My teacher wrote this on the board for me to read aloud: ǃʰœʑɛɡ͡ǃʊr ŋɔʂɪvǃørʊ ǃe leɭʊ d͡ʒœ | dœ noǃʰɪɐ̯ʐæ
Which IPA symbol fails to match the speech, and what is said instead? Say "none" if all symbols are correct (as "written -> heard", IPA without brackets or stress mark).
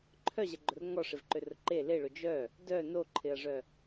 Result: æ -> œ